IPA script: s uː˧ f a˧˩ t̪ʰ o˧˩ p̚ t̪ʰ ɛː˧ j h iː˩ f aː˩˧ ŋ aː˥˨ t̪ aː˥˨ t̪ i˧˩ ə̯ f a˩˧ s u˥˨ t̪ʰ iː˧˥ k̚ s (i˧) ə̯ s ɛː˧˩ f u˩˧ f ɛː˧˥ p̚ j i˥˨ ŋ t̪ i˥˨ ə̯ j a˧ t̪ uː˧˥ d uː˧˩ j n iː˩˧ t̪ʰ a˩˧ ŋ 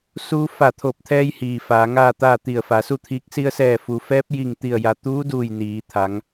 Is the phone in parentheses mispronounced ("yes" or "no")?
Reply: no